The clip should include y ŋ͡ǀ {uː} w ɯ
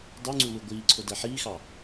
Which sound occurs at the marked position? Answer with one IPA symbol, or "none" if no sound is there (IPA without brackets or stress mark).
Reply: u